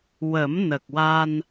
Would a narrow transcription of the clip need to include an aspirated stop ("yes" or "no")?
no